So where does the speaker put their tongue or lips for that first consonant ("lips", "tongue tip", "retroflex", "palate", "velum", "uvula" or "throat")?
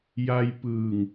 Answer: palate